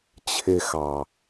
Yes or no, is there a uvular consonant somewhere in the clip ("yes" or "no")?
no